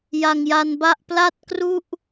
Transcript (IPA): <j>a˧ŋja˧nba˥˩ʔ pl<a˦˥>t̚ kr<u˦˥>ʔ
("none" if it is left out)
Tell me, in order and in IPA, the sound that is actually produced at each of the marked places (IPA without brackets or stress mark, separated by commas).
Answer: j, a˥˩, u˥˩